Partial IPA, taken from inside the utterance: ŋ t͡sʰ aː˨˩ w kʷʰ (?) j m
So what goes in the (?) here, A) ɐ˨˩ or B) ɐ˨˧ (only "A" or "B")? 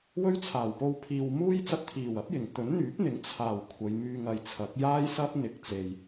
B